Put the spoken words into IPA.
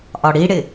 ʔɒɽiɽɪ

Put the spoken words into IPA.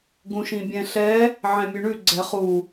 ɡũʃĩbʲɛ̃ɬɛ | ʕɛ̃mʲʉɳʉ ɡ͡ǀɛχu

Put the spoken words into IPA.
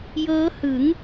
jɤː˦˥hɯ˩˦ŋ

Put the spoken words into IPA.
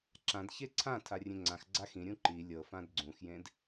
ǁãdçe ǀʰã tʰarʲẽŋ͡ǀãx ɡ͡ǀaxĩɾʲũ ǃi lʲɤfãd ɡ͡ǀũxjẽd

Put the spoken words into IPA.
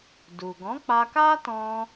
du˨ ɡɔ̃˨˦k͡pa˧ka˦ tɔ̃˧

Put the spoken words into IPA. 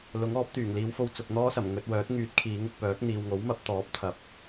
lʊ˨˥ŋɔː˨˥p̚t̪yː˨˩ŋ liː˨˧wfo˧w t͡sʊ˨k̚n̪ɔː˥sɐ˨˩m ŋɵ˧t̚wœː˨˥t̚ ŋyː˨˥t̚ kʰiː˨˥ŋʊ˧k̚pœː˨˥k̚ n̪iː˨wŋo˨˥wmɐ˨˥p̚ t̪ɔː˨˥p̚t̪ʰɐ˨˥p̚

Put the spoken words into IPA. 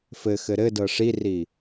fɘxɘ ɾɘdɤ ʂiri

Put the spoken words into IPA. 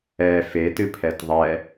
ɛ fetɨpʰɛt ðˤɛ

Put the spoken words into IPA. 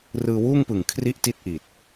rɯː˧wuː˥˩ŋpɯ˨˩ŋ kʰri˥˩ʔti˥˩t̚ʔi˨˩t̚

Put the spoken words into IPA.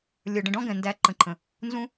lʲə˞˩ɖə̃˨ɖɔ̃˥ɡɛ̃˩ ndæ˨ ǃə̃˨ǃʰə̃˩ | nzũ˦

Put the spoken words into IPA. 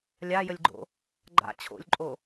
lʲajəlʲɡ͡ǃo̰ | ɡ͡ǃa̰ t͡ɕʰo̰lʲǃʼo

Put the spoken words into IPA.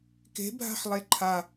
ke̤bʱa̤ħlˠe ǃʰa

